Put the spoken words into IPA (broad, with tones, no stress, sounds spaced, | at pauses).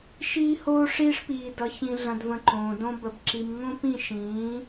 ʃ iː˦ h oː˦ ʂ iː˦ ʂ p iː˦ d ʌ˦ ç ĩ˦ ɮ ɐ̃˦ d v ə̃˦ ǃ õː˧ d õ˦ b ə˧ b ǁ i˧ m ŋ õ˦ p ĩ˦˨ ʃ ĩː˨˦